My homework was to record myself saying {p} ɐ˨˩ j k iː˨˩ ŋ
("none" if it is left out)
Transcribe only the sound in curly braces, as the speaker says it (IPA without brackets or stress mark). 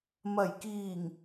m